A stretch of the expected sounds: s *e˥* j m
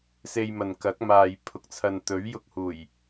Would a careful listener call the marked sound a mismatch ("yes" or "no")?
yes